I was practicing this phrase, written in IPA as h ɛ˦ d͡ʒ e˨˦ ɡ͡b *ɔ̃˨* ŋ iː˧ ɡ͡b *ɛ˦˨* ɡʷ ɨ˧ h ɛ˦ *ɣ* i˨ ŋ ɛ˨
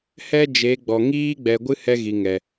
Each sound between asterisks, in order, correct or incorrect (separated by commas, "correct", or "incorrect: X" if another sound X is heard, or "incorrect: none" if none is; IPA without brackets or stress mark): incorrect: ɔ˨, incorrect: ɛ˨, correct